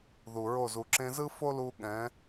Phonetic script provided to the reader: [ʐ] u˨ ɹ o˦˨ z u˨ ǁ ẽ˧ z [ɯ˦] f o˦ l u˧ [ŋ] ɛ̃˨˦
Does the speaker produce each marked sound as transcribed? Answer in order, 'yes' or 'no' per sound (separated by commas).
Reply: no, yes, no